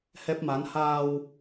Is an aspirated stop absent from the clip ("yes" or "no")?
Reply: yes